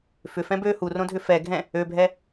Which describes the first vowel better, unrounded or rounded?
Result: rounded